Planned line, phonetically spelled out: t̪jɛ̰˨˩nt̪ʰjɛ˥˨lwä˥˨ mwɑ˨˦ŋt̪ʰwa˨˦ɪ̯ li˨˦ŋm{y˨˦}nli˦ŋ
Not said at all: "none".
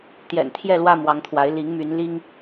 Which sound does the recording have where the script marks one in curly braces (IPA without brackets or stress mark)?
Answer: y˨˦